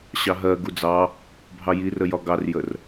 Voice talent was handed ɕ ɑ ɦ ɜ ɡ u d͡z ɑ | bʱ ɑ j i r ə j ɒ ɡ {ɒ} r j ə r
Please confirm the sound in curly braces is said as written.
no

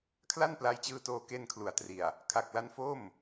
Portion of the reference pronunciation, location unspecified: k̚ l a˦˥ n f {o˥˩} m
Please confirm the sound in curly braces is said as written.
yes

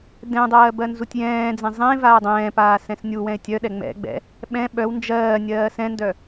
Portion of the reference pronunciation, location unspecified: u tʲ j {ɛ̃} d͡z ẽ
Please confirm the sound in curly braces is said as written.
no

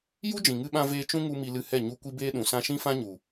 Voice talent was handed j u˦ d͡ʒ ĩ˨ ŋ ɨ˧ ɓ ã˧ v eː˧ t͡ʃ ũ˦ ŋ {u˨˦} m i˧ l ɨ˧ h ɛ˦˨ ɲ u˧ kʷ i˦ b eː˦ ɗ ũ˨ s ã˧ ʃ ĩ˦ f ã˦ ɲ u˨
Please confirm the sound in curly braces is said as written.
no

